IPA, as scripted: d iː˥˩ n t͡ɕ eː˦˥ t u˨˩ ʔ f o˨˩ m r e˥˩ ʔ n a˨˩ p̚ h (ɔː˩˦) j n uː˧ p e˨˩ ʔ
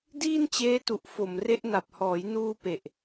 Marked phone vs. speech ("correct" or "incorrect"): correct